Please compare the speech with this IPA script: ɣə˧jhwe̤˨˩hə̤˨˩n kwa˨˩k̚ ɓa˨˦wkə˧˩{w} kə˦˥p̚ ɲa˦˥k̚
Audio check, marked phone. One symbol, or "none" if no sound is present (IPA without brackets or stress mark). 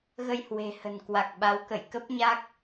j